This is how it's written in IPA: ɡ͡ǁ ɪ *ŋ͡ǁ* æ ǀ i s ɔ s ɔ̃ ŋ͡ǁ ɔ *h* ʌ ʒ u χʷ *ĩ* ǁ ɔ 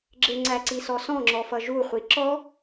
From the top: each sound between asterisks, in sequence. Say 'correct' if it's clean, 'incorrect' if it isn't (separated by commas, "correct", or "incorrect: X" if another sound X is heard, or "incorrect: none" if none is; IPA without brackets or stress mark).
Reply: incorrect: ŋ͡ǀ, incorrect: f, incorrect: i